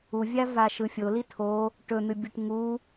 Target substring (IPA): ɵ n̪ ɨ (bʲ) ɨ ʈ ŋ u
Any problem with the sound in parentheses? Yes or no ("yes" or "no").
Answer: no